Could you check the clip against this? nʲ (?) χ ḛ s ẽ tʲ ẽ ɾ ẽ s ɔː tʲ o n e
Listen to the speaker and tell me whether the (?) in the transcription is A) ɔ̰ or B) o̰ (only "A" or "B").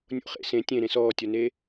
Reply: B